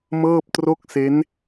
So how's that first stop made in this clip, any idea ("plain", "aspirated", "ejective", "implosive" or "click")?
plain